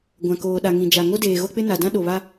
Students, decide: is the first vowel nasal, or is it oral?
nasal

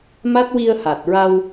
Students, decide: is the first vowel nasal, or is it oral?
oral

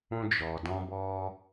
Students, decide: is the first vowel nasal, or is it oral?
nasal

